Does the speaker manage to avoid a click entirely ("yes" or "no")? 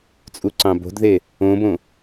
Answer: no